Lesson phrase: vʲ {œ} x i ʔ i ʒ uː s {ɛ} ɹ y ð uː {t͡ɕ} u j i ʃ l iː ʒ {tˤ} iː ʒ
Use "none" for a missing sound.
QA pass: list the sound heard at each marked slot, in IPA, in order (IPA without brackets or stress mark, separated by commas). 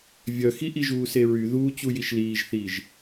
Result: œ, e, t͡ɕ, θ